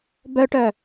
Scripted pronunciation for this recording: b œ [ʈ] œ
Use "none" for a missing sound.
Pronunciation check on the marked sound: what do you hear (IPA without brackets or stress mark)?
ʈ